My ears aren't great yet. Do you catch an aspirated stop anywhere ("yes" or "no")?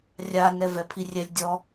yes